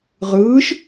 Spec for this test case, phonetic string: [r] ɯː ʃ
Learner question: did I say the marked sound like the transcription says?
no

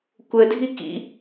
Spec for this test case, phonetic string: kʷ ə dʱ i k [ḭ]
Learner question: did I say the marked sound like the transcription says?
yes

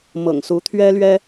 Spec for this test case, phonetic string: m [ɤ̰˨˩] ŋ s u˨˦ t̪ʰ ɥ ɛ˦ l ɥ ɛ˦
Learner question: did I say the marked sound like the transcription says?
yes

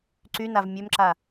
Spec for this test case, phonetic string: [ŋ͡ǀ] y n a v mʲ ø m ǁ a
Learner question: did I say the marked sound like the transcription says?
no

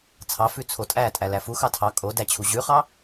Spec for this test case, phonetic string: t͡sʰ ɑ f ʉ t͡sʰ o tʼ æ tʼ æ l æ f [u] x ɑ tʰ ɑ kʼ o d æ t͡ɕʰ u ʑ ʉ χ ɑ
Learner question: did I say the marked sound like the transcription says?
yes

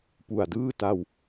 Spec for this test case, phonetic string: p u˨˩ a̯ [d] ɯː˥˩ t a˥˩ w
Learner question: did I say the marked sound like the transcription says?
yes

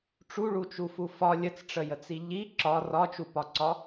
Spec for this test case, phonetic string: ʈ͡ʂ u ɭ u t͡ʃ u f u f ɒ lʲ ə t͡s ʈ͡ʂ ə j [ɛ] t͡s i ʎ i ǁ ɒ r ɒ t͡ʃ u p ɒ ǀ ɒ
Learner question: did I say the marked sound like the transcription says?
no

